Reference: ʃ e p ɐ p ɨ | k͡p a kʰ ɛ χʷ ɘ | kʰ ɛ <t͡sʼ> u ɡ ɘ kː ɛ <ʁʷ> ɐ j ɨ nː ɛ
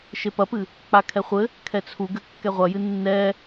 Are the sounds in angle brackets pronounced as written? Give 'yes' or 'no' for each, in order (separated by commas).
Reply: no, yes